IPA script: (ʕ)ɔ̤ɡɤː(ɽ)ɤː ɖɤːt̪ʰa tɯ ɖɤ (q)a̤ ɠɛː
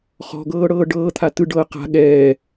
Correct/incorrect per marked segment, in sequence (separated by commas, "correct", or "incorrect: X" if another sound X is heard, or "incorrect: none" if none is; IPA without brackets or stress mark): incorrect: χ, correct, correct